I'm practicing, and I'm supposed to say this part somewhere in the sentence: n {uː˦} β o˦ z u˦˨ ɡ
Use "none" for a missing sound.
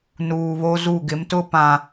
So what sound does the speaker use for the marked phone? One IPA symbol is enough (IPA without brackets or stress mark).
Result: uː˨